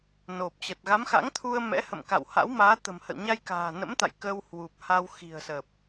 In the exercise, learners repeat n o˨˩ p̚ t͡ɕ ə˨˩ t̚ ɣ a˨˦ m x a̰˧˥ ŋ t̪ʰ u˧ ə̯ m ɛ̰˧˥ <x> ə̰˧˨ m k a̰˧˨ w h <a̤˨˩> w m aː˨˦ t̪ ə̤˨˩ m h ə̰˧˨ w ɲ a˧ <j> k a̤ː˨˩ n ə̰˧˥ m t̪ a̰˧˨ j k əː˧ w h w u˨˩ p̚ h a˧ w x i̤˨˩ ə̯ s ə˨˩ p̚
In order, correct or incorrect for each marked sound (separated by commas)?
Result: incorrect, incorrect, correct